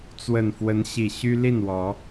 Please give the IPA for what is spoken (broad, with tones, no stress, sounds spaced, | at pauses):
t͡s w ə˨˩ n f w ə˨˦ n ɕ i˨˩ ɕ y˦ l i˥˨ n w ɔ˨˦